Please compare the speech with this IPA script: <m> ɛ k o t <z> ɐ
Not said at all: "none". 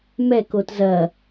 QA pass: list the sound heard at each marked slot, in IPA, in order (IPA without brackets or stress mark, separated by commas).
m, z